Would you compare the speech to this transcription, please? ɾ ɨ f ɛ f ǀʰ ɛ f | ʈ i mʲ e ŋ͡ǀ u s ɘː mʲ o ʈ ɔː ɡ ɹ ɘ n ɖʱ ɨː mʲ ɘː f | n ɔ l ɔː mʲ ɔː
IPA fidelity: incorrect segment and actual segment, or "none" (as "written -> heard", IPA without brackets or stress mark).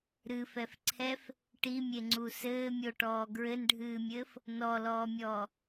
none